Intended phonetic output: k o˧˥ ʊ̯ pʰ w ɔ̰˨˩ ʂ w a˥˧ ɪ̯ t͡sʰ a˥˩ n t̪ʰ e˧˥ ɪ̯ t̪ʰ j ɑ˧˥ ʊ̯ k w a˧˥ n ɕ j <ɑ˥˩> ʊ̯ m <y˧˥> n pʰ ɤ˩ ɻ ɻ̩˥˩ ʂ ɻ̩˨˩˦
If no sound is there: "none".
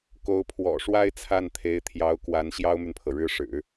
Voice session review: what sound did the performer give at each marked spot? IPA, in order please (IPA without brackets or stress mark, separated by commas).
ɑ˥, y˨